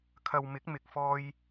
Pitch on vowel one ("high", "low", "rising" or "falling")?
low